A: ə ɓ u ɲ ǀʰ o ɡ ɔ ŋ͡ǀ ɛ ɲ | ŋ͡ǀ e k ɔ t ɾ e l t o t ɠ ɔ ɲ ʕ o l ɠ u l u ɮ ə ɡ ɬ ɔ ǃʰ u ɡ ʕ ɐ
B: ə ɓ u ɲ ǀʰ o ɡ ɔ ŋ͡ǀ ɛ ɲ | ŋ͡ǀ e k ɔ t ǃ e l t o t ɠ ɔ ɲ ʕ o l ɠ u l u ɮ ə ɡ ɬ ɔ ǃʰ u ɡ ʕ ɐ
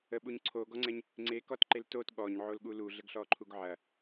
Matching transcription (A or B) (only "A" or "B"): B